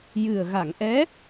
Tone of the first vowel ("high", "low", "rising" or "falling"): low